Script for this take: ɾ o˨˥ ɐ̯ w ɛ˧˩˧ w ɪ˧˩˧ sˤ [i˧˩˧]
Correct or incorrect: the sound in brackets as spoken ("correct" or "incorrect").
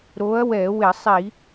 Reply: correct